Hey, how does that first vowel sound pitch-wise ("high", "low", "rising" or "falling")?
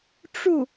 falling